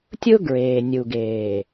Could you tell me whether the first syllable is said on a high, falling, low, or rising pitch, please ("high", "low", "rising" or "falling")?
high